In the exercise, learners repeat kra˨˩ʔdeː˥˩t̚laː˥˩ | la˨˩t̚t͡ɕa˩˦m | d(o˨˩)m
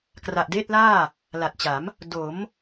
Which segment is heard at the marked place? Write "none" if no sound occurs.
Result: o˩˦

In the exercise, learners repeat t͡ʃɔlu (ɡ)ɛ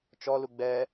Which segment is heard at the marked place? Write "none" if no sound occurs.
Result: ɡ͡b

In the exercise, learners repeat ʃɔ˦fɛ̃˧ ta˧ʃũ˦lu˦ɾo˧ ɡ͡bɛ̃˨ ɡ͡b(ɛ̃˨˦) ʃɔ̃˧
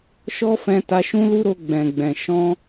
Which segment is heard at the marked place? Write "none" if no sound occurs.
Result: ɛ̃˨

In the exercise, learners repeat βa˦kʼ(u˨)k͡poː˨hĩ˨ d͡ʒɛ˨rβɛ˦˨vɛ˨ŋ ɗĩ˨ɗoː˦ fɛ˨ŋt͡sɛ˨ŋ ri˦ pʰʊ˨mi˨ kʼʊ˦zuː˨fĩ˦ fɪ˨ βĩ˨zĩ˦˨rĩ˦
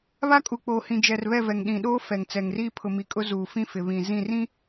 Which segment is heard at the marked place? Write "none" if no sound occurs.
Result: u˨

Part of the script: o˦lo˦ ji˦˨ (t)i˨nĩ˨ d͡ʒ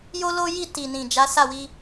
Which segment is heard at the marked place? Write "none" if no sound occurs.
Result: t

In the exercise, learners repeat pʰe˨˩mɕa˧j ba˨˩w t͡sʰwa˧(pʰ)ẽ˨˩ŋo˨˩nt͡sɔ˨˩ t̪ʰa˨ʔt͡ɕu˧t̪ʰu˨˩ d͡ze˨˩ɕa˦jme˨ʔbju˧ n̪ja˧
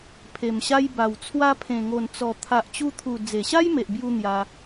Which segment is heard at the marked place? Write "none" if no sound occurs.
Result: pʰ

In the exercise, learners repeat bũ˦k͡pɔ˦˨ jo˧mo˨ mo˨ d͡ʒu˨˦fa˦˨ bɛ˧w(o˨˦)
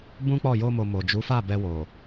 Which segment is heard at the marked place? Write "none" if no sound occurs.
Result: o˨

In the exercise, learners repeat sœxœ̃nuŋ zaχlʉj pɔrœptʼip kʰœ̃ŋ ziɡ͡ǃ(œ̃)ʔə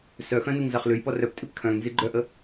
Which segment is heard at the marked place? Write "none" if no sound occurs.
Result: œ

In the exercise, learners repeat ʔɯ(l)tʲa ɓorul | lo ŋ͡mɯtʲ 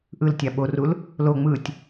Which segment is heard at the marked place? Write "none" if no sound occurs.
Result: l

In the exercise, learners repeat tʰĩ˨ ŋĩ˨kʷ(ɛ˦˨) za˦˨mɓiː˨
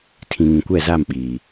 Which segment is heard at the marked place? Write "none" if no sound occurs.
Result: ɛ˦˨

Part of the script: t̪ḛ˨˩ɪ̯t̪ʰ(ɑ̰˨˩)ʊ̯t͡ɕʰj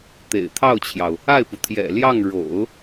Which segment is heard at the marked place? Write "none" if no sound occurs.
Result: ɑ˥˩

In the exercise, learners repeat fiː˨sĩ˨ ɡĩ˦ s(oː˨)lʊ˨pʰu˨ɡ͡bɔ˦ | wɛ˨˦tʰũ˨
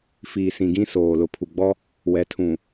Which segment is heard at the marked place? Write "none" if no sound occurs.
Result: oː˨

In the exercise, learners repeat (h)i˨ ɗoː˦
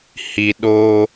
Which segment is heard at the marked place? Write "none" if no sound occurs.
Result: h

